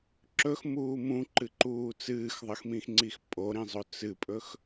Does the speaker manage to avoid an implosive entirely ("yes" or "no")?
yes